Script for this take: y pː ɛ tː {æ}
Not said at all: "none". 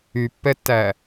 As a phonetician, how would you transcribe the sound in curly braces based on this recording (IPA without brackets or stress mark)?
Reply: æ